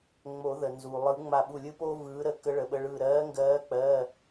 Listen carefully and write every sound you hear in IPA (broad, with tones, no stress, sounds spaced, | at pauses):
ŋ͡m o˨˩˦ ð ə˩ n z uː˩ lˠ ɯ˨˩˦ ŋ͡m a˧˩ ɓ u˧˩ lʲ ɯ˦ p o˦ v ɯː˨˦ ɾ ə˨˦ k ə˨˦ ɭ ə˩ ɓ ə˩˧˩ ɭ ɯː˧˩ ɾ ɜː˨˦ ŋ ɡ ɜː˨˦ k͡p ɜ˩˧˩